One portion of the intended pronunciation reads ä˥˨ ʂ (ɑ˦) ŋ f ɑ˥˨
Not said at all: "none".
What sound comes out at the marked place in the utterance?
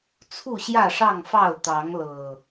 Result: ɑ˥˨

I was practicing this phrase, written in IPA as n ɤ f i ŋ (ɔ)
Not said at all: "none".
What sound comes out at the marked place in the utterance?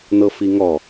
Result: ɔ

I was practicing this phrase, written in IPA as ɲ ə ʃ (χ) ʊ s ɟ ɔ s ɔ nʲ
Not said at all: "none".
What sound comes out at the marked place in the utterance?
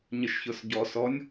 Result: ç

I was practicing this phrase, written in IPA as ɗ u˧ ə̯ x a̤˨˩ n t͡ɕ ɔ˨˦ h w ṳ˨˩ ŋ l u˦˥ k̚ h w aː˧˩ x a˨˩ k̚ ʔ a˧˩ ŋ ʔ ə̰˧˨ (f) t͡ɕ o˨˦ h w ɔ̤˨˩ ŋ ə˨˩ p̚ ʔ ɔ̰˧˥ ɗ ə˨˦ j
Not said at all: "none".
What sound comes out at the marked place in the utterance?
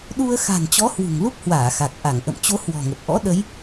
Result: m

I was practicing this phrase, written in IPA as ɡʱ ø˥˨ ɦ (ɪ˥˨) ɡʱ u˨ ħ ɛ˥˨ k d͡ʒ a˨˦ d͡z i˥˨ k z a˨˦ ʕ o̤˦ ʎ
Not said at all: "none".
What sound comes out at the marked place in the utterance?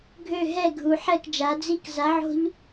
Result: ɛ˥˨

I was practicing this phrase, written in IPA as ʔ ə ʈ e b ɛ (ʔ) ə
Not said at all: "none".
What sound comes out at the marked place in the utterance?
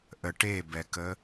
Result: k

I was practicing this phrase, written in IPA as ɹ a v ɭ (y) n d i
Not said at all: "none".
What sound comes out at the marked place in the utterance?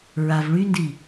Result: y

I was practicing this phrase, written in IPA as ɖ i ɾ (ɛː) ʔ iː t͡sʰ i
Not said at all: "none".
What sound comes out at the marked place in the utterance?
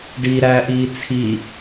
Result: æː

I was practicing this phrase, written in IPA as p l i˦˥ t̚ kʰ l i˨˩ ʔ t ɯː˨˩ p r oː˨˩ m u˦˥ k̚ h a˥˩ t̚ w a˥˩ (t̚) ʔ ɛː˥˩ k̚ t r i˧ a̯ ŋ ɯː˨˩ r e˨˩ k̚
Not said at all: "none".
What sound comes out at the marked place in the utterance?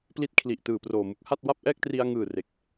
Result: p̚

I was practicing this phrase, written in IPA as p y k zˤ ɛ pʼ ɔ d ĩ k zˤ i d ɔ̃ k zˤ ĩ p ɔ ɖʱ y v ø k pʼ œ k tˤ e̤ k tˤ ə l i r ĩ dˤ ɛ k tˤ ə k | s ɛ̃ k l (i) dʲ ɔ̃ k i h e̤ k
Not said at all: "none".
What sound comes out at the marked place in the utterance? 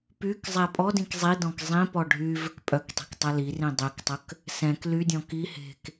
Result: y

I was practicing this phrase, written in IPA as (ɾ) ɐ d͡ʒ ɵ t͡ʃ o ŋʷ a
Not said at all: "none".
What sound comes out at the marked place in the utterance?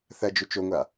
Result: θ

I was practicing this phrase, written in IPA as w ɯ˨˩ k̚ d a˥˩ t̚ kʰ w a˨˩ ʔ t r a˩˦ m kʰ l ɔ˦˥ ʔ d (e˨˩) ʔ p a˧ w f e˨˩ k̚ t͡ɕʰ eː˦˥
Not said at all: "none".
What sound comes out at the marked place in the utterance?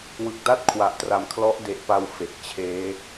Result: e˨˩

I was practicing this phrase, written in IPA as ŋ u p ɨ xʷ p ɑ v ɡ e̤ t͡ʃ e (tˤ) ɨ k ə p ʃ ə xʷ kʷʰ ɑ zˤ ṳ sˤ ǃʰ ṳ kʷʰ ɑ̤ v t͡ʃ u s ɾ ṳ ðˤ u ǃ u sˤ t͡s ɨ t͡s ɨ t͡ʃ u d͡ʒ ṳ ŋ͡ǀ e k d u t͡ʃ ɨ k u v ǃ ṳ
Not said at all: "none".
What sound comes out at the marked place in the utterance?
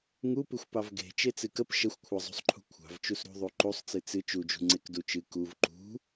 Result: t͡s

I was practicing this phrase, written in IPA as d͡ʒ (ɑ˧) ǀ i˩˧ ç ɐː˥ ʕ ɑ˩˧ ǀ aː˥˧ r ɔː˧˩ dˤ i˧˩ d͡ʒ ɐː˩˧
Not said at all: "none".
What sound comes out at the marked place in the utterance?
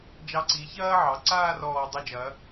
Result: ɑ˧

